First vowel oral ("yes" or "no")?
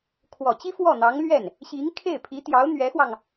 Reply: yes